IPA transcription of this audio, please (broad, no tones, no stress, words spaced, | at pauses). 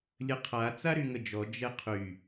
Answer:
lʲəqʰa t͡saɾyŋəd͡ʒɔ d͡ʒɛqʰy